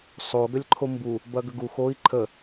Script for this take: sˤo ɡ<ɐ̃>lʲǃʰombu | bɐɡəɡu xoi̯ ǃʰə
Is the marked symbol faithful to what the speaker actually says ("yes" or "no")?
no